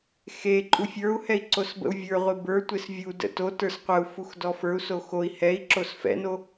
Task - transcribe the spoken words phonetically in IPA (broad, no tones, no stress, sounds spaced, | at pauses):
x e ǃʼ u fʲ ə˞ u̯ h ɛ i̯ ǀ o s b ə̰ u̯ vʲ ə˞ ʁʷ e b ə˞ tʷ e s vʲ u d ə̰ t o t ə˞ s qʷ ə u̯ f u x d ɔ f ə˞ u̯ s o x o i̯ h ɛ i̯ ǁ o s f ɛ̰ n o